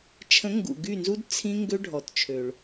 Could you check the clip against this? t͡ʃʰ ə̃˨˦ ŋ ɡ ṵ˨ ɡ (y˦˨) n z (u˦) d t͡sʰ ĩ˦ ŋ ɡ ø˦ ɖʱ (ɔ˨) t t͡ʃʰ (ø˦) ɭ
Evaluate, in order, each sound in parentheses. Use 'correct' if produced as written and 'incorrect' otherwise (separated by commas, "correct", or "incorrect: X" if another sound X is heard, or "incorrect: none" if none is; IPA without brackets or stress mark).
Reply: correct, correct, correct, incorrect: ø˨